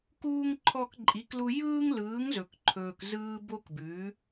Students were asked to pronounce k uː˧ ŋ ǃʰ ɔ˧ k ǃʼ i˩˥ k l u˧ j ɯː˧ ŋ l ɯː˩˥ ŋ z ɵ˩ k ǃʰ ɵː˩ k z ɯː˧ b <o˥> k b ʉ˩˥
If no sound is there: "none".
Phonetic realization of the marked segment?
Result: o˥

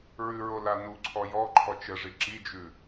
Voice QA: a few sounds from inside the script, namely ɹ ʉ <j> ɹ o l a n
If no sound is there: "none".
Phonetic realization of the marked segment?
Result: none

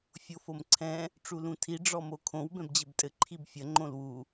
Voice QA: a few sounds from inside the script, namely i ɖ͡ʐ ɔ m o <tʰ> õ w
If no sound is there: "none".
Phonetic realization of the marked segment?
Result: kʰ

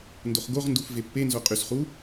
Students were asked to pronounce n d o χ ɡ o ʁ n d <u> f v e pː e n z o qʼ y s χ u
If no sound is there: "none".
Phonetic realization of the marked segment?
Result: u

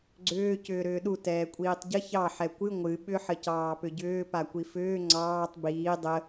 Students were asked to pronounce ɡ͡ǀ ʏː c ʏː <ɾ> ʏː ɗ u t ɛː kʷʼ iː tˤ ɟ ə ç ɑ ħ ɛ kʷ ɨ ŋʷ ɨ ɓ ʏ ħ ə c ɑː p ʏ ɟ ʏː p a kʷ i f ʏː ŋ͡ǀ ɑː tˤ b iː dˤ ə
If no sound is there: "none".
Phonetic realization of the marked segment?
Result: ɾ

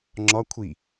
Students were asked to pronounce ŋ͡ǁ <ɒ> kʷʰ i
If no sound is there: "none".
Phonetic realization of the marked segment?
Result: ɒ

